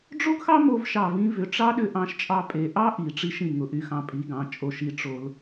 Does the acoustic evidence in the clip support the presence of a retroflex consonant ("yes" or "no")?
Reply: yes